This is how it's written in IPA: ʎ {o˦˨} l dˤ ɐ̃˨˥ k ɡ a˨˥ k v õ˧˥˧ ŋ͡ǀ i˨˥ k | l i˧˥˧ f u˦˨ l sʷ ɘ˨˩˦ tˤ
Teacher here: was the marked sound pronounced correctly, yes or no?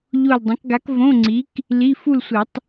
yes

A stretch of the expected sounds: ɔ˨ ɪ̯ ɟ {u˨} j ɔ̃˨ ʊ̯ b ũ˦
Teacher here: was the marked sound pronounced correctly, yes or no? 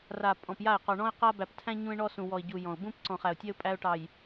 yes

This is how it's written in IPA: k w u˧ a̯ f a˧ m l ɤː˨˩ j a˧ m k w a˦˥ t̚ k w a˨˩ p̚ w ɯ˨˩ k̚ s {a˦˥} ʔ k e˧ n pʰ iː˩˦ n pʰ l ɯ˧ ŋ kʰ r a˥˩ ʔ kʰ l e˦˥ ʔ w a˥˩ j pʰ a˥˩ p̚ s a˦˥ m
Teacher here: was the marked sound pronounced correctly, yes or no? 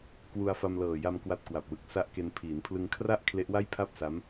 yes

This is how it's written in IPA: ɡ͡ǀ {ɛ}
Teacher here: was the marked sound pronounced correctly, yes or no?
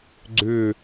no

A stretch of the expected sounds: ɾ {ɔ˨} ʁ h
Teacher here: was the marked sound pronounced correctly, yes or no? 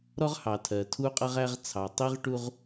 no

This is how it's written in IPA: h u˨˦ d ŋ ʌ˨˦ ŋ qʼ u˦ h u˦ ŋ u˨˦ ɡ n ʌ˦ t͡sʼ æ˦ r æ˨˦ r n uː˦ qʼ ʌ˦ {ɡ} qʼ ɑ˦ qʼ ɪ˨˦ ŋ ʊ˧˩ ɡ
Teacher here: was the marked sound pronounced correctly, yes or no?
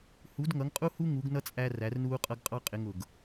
yes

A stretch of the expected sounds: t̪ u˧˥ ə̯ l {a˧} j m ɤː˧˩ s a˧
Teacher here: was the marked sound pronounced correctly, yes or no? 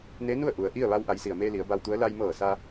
yes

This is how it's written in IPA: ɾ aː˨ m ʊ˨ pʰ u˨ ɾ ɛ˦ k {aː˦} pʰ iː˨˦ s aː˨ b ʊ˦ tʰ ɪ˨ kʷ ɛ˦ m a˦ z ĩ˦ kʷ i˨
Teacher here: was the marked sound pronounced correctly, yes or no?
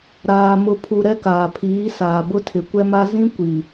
no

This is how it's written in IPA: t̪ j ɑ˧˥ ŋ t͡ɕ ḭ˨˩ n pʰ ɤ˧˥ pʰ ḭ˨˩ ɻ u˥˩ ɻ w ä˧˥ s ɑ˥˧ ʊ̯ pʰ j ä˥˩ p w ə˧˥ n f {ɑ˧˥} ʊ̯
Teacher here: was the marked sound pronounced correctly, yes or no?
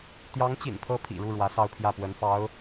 yes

